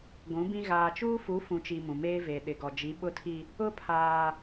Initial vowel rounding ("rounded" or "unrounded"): rounded